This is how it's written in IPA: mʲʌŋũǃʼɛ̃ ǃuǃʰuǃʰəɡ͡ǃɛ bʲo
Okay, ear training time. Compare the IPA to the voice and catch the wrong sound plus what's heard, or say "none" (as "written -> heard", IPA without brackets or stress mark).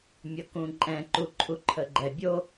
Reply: ŋ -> k